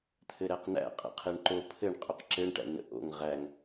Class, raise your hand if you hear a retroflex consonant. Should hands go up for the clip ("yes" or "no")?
yes